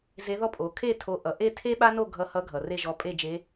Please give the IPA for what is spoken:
z e˧˥ ð ɔ˥ pʼ o˩˧ kʰ e˥˧ tʰ o˧ ʔ ʌ˩ ʔ e˥˧ tʰ e˥ ɓ a˥ n o˥˧ ɡʱ ʌ˧˥ h ʌ˧˥ ɡʱ ʌ˩ r e˥˧ ʒ ɔ˧˥ pʼ e˥˧ d͡ʒ e˧˥

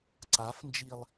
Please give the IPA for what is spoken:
ǀ a f n d͡ʒ i lˠ

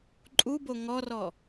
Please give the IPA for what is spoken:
ǃʼ u b o ŋ ɔ r ɔ

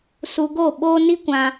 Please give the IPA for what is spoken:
s u˧ ɡ o˦˨ ɓ oː˦ n i˦ kʷ ã˧

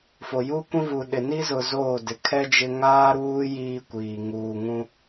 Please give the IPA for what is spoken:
f o˨ j u˦ kʷ ĩ˦ v u˨ ɗ ɪ˨ n i˦ z ʊ˨ z oː˦˨ d ɪ˨ kʰ ɛ˦ d͡ʒ ɪ˦ ŋ aː˦ ɾ uː˦ j iː˦ kʷ iː˨ ŋ uː˨ ŋ ũ˦

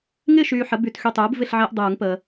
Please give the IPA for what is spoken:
ŋ ɪː˥˨ ʃ yː˨ ħ ə˩˥ b y˨˩˦ t x y˨ tˤ uː˩˥ b v ɪ˥˨ ɬ ʕ ɪː˦ ʔ dˤ uː˨˩˦ ŋ p əː˨

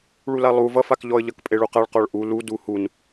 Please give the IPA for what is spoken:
ɭ u l a lˠ u v ʌ f a k ʎ ɔ ə̯ ʎ ʌ k pʼ e ɭ u q a ɭ q ɔ ɭ ʔ u l u d u h u n

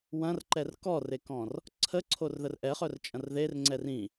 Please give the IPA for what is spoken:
w ɐ̃ r ǃ ɛ r k ɔ r e k ɔ̃ r | ǀʰ ə ǀʰ o r ð ə r ʔ ɛ χ œ r t͡ʃʼ ɐ̃ r ð e r ŋ͡ǀ ɛ r ĩ

